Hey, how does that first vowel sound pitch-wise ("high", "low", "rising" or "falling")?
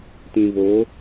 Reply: low